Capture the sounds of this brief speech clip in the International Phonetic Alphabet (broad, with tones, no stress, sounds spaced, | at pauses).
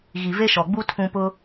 ɣ i˨ v e˦ ʃ ɔ˨ ɡ͡b u˦ tʰ ũ˦ p ʊ˦